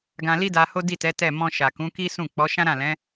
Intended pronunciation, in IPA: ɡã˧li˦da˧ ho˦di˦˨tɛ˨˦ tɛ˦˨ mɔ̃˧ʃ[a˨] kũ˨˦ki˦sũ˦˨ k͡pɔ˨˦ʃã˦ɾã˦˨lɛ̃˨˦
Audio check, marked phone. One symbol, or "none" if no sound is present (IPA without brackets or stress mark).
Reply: a˨